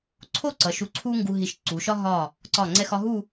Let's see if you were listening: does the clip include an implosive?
no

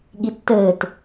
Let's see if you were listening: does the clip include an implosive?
yes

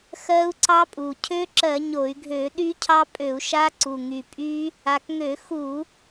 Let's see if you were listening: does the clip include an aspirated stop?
yes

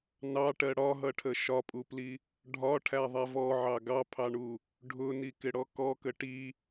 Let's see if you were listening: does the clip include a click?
no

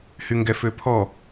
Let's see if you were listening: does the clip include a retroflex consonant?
no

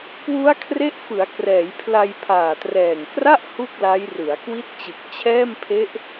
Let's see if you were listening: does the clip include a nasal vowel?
no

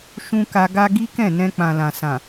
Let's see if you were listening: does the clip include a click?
no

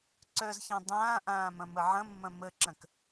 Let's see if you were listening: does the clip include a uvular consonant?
no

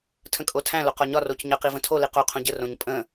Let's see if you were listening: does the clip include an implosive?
no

